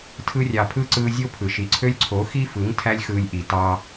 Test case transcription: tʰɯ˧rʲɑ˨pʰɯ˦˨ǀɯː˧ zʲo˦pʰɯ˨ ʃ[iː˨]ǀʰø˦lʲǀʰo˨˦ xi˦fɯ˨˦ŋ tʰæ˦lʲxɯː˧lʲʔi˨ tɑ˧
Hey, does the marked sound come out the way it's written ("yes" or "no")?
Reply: no